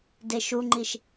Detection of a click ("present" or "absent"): present